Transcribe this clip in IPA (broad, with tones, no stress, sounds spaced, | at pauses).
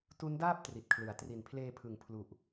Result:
t u˦˥ n d aː˥˩ p̚ t r i˨˩ t̚ kʰ l ɯ˩˦ a̯ t r i˨˩ n pʰ l eː˧ pʰ ɯ˨˩ ŋ pʰ l u˨˩ ʔ